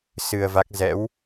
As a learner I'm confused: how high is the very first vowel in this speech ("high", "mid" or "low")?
high